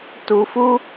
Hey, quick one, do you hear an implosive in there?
no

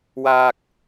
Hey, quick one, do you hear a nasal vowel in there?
no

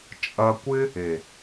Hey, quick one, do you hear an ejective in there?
yes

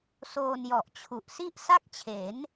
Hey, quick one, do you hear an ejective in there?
no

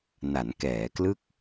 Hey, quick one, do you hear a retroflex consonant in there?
no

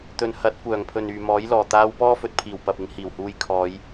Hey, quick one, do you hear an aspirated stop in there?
yes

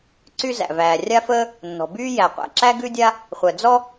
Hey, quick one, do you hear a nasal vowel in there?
no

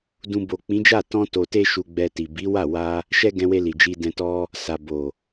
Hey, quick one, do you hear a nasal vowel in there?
yes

